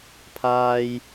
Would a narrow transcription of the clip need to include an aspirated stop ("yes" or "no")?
yes